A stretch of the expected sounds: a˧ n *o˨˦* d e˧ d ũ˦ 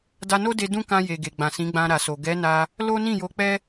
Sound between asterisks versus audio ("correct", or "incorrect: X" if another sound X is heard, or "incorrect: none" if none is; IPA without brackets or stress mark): incorrect: o˦